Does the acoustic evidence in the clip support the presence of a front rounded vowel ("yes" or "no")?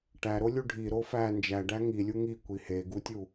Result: no